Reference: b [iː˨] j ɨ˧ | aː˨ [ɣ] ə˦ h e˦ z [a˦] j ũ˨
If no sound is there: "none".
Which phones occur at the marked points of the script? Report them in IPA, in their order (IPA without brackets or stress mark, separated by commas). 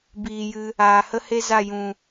iː˨, h, a˦˨